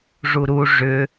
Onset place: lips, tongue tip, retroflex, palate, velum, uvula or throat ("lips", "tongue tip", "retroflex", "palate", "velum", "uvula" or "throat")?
retroflex